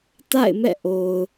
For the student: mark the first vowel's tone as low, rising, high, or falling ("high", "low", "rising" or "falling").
falling